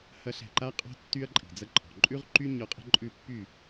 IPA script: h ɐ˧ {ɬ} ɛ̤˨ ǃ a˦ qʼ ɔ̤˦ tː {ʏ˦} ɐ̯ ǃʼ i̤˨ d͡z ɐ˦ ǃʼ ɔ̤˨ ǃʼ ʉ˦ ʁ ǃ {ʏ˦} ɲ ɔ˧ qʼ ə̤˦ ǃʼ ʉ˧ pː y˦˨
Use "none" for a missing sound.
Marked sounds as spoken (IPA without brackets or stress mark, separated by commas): ɬ, y˦, y˦